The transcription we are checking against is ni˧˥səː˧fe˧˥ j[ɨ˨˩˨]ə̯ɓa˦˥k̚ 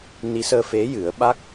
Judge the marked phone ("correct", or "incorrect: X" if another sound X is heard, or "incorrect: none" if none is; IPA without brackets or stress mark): incorrect: ɨ˨˩˦